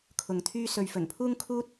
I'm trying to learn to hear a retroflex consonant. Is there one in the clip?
no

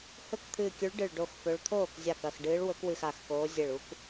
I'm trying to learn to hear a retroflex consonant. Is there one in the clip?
yes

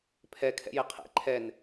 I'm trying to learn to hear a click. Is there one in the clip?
yes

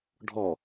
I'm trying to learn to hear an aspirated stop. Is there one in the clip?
no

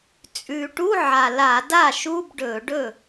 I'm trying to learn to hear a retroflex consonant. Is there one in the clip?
yes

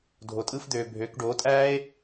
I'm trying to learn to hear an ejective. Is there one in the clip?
yes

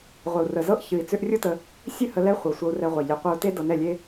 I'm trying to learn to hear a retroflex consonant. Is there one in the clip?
no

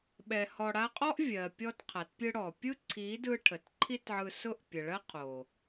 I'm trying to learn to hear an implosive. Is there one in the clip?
yes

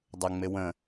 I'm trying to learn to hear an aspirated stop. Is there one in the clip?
no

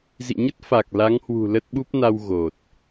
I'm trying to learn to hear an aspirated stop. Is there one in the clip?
no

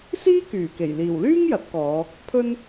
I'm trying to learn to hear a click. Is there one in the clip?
no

